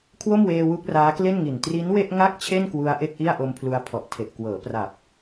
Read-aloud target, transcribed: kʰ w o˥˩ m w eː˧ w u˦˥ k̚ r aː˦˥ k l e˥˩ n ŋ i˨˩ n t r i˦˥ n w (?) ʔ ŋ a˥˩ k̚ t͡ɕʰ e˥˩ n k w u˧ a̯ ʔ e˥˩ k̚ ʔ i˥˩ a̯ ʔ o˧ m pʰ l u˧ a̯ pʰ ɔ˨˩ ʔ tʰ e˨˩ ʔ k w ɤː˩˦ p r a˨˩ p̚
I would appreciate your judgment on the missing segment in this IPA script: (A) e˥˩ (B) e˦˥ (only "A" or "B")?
A